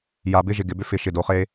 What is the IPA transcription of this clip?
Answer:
ja˨bɪ˦ʒɪ˨ɡɪ˨ bʏ˦fɪ˨ ʃɪ˨do˨χe˦

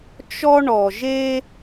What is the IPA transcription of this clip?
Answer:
t͡ʃɔ˦ ɳɔ˨ʒe˦

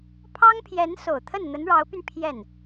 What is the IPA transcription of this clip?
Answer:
pʰɑ˥ŋpʰjɛ˧˥nso˨˩ʊ̯ t̪ʰə˥˩nn̪ə˧˥nɻɑ˧˥ʊ̯py˧n pʰjɛ˥˩n

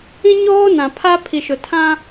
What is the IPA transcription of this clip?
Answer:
ĩ˦ɲoː˦nã˨pʰa˦ pʰi˨ʃʊ˨tʰã˦

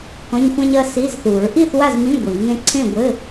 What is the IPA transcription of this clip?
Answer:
kɔ̃˧˥˧ɲxʷã˥ɲɐ˧˥˧ si˧˥˧zθu˨˩˦ɹ ʔi˥˨θwa˥˨zmĩ˧˥˧ ɡʷi˨˩˦ŋẽ˥ ǀʰẽ˥˨ɡʷɘ˧˥˧

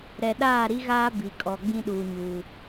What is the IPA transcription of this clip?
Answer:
ɾɛ˨ɗaː˦˨ ɾi˦ɣaː˦ bi˨kʼɔ˨ ɡ͡bĩ˦ɗuː˨ɲuː˨

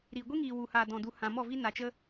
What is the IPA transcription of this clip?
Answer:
ɾiː˨ɡʷi˦ŋiː˨ wu˨haː˨ dɔ̃˨du˨ hã˨mɔ˦˨vi˦ na˨t͡ʃə˦

